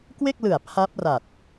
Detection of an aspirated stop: present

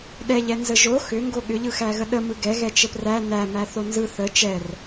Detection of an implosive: present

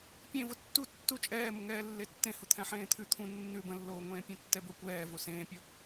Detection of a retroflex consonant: absent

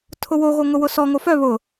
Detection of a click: absent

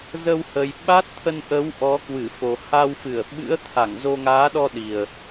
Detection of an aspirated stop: present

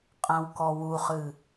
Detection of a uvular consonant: present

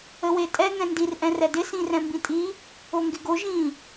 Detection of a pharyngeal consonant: absent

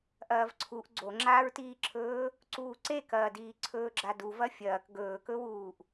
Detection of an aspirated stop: present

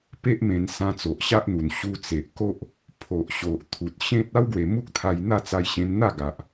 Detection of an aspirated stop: present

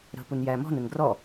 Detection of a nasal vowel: absent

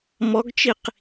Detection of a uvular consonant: present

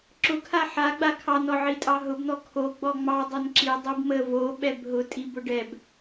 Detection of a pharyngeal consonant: present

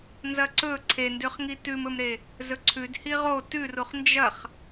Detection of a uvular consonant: present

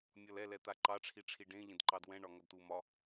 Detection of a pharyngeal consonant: absent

